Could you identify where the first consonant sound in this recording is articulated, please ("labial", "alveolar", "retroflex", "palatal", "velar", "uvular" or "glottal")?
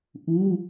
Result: glottal